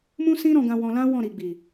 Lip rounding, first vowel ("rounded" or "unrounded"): rounded